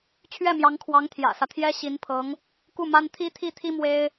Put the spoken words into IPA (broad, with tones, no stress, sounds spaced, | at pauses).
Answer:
t͡ɕʰ ɥ ɛ˥˩ m j ɑ˧˥ ŋ kʰ w ɑ˧˥ ŋ t̪ʰ j ä̰˨˩ s ä˦ t̪ʰ j ɛ˥ ɕ i˧˥ n pʰ ɤ˧˥ ŋ | k u˥˩ m a˥ n t̪ʰ i˥ t̪ʰ i˥˩ t̪ʰ i˥ m w e˥ ɪ̯